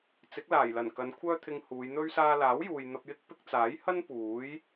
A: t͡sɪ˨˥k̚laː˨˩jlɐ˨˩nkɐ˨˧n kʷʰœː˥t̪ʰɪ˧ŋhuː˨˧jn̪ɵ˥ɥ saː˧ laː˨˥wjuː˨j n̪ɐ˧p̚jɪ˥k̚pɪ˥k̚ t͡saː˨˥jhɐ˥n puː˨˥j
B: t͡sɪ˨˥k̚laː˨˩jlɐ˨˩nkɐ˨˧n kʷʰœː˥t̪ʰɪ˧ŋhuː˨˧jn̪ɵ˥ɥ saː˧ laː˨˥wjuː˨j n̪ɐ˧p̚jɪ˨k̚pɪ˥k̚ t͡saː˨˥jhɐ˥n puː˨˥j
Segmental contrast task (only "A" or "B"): A